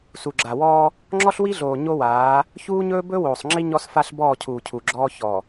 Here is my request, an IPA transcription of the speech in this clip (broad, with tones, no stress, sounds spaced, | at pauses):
s u˨ ɡ͡ǁ a˨ w ɔː˦ | ŋ͡ǁ ɔ˦ ɬ w i˦ ɮ oː˨ ɲ o˦ w aː˨˦ | ç uː˦ ɲ ɵː˦ b ɵ˦ w oː˨ sˤ ŋ͡ǁ i˦ ɲ ɔ˦ s f a˦ ɬ b ɔː˦˨ cʰ uː˨ cʰ u˨ ɡ͡ǁ ɔː˦ ç ɔ˨